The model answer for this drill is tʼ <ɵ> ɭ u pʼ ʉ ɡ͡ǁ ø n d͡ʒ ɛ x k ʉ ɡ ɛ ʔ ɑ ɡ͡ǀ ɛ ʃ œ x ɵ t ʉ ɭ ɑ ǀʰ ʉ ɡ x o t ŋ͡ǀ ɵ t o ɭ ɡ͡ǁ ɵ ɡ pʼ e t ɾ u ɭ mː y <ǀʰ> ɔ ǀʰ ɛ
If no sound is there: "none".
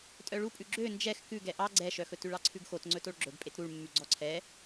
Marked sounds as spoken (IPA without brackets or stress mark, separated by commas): œ, ɡ͡ǀ